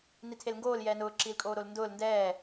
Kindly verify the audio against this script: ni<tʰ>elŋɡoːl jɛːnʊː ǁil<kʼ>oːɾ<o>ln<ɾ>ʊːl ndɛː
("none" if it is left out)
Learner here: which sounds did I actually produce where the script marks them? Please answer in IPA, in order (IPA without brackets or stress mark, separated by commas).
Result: tʰ, kʼ, o, d